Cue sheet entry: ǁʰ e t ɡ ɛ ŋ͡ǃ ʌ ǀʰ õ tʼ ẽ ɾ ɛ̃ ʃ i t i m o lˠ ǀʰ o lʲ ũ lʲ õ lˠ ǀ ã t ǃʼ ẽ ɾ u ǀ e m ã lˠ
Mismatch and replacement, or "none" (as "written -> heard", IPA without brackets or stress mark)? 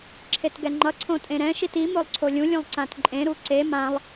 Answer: none